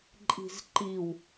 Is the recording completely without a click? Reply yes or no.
no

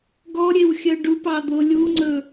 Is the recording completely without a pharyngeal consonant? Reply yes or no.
yes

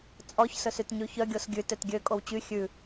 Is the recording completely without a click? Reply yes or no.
yes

